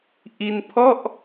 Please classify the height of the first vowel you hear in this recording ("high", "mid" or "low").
high